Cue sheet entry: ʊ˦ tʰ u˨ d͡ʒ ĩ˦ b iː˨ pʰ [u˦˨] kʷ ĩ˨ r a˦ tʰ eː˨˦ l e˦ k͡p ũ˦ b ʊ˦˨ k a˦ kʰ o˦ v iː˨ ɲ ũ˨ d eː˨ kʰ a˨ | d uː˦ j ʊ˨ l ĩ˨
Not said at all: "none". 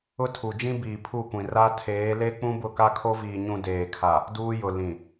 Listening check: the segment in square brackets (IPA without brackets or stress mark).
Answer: u˦˨